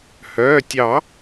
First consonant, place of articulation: glottal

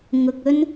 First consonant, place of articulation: velar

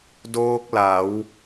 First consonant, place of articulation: alveolar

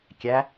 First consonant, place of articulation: velar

